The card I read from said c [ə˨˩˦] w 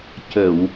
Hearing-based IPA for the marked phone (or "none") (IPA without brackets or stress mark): ə˨˩˨